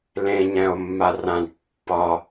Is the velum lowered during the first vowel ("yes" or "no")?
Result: yes